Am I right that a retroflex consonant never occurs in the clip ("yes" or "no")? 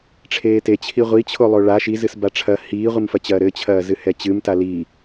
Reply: no